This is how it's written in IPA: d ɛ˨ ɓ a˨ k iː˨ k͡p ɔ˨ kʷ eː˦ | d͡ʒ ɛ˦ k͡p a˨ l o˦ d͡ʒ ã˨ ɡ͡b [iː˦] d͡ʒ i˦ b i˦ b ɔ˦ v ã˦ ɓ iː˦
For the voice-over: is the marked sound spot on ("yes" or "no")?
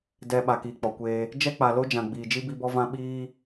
no